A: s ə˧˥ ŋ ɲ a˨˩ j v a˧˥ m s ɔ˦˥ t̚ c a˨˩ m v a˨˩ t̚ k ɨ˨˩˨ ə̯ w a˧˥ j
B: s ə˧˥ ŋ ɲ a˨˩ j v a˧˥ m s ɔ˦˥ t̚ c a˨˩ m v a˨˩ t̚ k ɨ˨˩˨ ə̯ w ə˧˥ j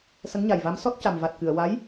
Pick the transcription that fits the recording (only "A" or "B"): A